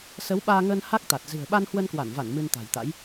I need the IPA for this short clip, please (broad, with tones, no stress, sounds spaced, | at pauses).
s ə˨˦ w ɓ aː˧ ŋ əː˧ n h a˦˥ k̚ t̪ a˨˩ t̚ z ɨ̤˨˩ ə̯ ɓ a˧ n h w ə˧ n k w a˧˩ n v a˧˩ n m ɨ˧ n t̪ a̤˨˩ j t̪ a̰˧˥ j